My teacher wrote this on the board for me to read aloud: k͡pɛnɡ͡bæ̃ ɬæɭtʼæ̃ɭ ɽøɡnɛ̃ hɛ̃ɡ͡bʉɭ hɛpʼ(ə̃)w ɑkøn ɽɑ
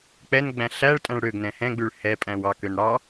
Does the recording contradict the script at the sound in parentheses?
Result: yes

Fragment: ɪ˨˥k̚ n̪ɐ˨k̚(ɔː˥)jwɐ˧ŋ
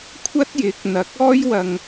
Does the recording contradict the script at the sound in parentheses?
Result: no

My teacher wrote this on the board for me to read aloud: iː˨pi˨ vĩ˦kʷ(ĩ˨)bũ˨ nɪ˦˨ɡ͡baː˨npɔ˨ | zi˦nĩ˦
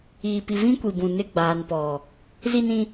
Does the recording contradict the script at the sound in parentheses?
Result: yes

